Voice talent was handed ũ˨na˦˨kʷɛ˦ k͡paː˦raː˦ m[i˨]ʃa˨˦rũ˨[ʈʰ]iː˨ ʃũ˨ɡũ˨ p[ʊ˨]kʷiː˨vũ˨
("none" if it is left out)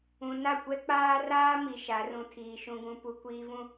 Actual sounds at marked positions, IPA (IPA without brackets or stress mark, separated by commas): i˨, tʰ, u˨